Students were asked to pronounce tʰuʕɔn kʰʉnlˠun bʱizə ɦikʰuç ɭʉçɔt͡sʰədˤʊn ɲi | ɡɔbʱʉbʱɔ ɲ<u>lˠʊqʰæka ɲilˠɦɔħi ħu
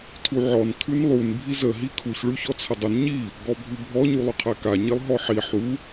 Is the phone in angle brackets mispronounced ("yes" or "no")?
no